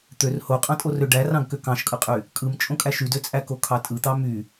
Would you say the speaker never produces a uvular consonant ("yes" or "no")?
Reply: no